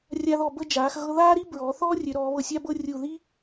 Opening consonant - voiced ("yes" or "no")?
yes